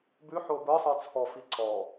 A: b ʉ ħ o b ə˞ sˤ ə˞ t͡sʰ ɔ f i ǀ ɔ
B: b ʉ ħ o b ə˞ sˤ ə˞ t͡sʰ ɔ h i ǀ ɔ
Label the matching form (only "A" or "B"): A